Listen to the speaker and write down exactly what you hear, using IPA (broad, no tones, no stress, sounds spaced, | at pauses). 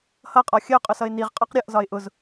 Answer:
h ʌ qʼ ɒ xʲ ə ʊ̯ qʼ ʊ s ʌ ɪ̯ n i ʁ qʼ ɒ q ɾʲ ʌ ʔ z ɒ ɪ̯ ʔ ʊ z